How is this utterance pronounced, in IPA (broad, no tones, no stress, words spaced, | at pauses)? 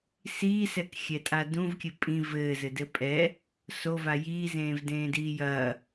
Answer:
siːsɛkxʲɛtʼa dũvkʲɘ pʼĩv ɘːzɘdɘ pʼɛ | sova jiːzẽːvdẽːdiː jɐː